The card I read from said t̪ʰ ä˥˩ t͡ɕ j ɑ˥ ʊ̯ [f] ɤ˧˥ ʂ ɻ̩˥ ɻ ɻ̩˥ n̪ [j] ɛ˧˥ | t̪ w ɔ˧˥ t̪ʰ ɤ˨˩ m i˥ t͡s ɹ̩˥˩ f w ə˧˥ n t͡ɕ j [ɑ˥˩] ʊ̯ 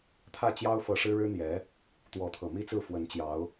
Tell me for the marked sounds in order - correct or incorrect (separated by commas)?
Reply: correct, correct, incorrect